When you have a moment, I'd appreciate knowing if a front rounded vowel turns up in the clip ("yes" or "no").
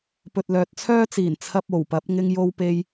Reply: yes